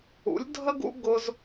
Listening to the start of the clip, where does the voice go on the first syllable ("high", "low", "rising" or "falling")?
rising